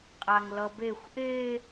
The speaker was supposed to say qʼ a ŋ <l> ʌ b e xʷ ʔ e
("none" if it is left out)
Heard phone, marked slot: l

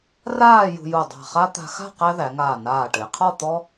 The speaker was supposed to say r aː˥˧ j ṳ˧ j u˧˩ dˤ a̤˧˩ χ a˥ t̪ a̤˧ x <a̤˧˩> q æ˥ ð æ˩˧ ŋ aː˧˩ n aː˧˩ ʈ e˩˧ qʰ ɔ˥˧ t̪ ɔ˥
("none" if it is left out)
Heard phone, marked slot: a̤˥˧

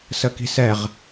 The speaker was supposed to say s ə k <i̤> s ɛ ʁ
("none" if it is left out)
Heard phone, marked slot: i̤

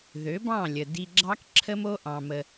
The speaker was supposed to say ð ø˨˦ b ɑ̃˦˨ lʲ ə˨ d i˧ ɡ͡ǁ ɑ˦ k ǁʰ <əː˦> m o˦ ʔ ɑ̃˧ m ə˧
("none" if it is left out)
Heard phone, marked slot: ə˦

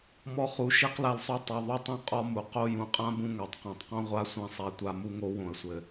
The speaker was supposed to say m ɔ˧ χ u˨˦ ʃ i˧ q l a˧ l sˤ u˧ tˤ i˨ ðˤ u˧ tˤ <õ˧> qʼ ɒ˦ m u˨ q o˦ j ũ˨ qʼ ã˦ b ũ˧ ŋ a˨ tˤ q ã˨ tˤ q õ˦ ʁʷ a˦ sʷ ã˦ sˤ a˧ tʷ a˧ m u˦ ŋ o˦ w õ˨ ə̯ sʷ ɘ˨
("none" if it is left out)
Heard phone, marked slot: ũ˧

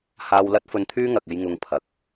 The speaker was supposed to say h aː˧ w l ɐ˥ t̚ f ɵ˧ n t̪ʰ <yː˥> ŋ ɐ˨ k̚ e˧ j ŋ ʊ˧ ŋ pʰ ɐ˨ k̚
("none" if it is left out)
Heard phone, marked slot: yː˥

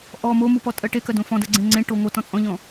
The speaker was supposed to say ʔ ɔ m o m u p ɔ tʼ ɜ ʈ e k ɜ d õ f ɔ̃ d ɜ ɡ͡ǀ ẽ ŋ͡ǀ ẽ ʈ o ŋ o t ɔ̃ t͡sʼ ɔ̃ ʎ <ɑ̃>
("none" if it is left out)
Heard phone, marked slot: ɔ̃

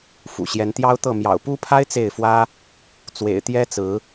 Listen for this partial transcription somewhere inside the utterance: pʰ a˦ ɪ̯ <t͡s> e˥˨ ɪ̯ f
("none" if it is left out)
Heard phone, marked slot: t͡s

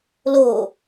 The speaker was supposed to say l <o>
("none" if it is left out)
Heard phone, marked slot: o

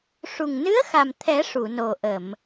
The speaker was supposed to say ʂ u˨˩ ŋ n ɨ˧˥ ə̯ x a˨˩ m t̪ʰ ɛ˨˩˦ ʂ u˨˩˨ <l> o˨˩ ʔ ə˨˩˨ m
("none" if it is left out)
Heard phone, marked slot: n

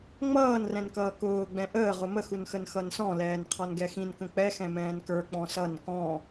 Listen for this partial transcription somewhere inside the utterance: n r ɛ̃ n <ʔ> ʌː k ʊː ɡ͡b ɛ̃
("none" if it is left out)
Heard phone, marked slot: k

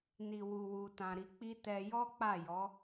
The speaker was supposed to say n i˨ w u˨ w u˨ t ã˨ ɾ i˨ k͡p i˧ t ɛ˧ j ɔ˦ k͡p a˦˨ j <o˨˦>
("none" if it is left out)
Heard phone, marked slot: ɔ˨˦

